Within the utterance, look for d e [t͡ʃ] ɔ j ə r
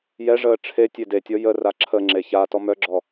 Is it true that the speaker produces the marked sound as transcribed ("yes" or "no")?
no